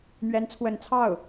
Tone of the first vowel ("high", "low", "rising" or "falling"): rising